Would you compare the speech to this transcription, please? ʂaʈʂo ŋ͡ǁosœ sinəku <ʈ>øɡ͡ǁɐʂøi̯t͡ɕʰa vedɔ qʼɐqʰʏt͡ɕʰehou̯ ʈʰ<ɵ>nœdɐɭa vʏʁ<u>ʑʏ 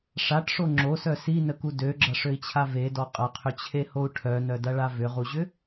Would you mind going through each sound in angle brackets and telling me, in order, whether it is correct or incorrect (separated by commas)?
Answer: incorrect, incorrect, correct